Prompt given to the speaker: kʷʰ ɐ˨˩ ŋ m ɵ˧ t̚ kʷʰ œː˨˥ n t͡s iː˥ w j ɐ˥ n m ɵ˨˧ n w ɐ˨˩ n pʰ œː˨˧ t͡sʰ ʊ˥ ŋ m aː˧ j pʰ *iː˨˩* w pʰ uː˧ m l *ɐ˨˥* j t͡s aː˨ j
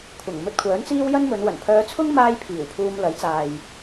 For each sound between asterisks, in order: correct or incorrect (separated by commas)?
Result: correct, correct